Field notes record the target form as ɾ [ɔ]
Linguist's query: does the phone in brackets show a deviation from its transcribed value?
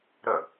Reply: yes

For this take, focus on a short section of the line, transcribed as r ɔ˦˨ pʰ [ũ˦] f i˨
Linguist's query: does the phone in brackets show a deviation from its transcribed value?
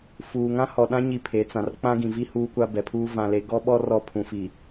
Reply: yes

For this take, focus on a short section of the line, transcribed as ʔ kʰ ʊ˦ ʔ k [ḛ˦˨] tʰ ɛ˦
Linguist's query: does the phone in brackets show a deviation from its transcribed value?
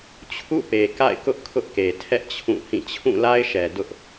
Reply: yes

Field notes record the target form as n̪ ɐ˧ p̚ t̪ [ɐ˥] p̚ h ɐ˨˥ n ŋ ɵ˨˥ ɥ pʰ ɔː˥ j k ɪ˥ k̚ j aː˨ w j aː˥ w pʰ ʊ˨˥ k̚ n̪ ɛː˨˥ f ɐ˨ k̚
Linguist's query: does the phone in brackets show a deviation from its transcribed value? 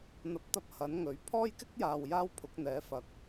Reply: no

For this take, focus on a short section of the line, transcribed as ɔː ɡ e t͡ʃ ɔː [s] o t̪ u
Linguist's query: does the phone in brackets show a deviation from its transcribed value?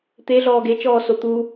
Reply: no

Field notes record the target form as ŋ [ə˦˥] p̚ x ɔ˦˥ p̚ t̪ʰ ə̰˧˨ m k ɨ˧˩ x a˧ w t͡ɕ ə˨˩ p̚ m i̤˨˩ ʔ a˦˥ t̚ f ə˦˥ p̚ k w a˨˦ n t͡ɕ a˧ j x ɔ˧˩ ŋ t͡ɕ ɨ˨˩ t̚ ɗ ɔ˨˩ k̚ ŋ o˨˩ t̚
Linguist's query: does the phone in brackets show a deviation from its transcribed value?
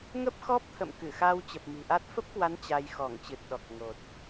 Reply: no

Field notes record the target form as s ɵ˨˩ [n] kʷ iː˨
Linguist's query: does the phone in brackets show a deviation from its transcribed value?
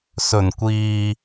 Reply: no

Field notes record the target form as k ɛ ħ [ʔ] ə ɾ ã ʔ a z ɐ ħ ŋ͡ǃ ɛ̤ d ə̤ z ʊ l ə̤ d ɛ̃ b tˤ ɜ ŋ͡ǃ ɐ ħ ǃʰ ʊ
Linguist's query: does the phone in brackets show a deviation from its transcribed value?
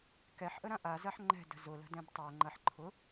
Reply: no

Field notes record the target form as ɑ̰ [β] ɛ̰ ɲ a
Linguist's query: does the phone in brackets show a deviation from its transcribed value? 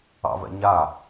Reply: yes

